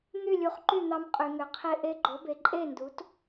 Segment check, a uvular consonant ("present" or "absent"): present